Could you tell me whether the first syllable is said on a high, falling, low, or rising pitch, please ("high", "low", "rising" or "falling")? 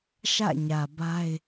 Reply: falling